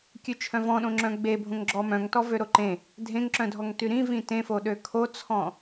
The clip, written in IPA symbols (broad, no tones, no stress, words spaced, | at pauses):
kʲʉt͡ʃʰœ̃vɔ̃ɗõ ŋ͡ǁœ̃ɡ͡be bʱõŋɡ͡ǁɔmœ̃ŋtɔ vøɾoǃẽ | dʱẽŋǁœ̃dʱɔŋ tyɾĩ vĩtẽfo ɗøkʰot͡sʰɔ̃